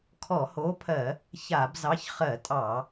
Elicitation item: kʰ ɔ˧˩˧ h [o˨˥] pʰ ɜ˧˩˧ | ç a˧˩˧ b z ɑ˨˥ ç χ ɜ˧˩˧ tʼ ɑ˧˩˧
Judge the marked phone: correct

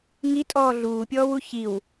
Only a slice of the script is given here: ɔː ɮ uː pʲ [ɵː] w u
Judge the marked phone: incorrect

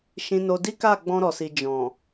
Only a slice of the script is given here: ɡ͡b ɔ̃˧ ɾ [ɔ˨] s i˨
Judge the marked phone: correct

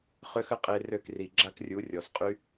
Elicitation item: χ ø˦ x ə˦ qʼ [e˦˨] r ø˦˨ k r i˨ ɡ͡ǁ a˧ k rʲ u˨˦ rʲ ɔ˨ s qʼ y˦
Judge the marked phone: incorrect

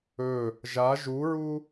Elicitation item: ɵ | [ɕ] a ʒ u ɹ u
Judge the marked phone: incorrect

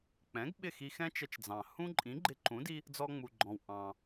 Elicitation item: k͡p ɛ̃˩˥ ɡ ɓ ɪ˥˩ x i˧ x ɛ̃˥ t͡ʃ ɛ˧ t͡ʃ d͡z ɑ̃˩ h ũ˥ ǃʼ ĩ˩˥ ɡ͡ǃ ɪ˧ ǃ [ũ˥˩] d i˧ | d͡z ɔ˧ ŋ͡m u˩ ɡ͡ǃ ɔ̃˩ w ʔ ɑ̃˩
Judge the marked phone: incorrect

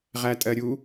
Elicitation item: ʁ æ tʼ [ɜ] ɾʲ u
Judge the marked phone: correct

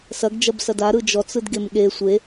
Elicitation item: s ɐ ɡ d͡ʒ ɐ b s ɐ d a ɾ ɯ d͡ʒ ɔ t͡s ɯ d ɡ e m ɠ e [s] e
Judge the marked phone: incorrect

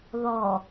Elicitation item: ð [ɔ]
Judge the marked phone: correct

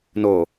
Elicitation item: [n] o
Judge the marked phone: correct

